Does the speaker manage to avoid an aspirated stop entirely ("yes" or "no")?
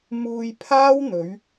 no